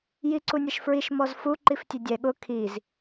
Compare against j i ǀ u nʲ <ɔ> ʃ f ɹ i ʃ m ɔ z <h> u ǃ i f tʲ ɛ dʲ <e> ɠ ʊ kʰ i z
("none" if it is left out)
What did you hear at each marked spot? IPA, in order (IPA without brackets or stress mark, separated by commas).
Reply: ʌ, f, ɛ